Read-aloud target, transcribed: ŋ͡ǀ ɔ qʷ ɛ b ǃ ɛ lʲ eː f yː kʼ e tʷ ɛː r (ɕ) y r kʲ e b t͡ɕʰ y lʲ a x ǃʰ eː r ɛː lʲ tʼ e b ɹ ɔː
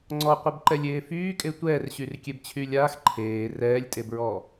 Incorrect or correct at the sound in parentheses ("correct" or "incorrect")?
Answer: correct